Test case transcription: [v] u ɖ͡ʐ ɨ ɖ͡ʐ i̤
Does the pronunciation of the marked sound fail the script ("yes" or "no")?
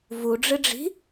no